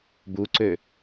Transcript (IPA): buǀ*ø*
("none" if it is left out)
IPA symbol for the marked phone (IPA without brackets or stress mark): ø